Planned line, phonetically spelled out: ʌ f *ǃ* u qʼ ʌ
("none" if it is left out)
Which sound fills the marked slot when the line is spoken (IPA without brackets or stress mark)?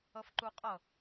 ǃ